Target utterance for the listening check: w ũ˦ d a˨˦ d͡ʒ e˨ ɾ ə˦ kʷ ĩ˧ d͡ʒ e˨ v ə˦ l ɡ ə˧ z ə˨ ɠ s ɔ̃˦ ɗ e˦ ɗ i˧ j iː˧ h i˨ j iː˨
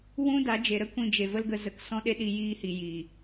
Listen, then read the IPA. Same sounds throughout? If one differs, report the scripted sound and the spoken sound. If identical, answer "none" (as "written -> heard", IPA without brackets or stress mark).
ɠ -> k